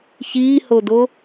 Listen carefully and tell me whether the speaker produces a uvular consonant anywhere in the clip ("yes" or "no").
no